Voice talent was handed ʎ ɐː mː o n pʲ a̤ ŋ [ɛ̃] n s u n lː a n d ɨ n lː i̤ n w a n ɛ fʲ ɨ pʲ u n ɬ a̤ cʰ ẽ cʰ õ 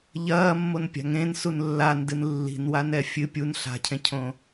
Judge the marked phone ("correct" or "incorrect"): incorrect